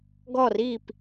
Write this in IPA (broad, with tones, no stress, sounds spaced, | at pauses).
ɡ ɔ˥˩ r i˥˩ p